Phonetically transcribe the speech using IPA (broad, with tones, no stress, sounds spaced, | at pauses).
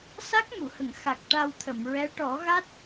s a˦˥ k̚ m u˨˩˨ h ə˨˩˨ ŋ x a˨˩ k̚ ʈ a˧ w t̪ʰ ə˨˩˨ m ɹ ɛ˧˥ ʈ ɔ˨˩˦ ɣ a˦˥ t̚